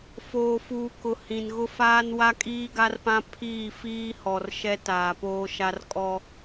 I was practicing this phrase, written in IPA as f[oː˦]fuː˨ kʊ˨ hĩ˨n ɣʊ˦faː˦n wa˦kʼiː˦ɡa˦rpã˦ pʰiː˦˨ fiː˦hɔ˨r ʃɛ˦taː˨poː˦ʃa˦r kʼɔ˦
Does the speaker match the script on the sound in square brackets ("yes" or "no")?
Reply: no